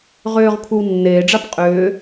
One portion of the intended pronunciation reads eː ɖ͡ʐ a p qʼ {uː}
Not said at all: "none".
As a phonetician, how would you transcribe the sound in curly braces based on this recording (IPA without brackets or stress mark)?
ʏː